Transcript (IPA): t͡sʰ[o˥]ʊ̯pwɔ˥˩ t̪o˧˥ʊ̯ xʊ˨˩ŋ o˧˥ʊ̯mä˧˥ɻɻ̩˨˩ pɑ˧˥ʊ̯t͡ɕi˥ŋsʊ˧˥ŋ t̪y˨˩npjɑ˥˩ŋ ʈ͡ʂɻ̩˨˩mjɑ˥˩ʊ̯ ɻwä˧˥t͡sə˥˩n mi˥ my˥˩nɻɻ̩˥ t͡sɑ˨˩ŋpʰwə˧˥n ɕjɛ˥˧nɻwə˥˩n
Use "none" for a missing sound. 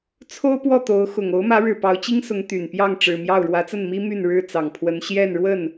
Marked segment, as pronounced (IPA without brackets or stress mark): o˥